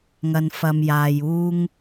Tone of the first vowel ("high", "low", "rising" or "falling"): low